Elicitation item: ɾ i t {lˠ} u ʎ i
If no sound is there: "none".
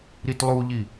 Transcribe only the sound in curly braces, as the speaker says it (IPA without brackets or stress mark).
lˠ